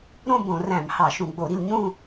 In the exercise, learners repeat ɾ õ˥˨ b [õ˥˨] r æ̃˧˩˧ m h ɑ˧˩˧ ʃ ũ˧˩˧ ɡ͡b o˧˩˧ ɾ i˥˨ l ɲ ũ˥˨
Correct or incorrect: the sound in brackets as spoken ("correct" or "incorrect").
incorrect